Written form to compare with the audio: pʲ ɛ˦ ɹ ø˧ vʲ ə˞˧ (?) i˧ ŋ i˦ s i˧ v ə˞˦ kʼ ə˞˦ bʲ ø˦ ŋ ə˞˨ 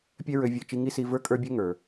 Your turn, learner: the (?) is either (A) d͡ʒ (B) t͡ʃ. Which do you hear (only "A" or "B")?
B